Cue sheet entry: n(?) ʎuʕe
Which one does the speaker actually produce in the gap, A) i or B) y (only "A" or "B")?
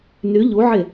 B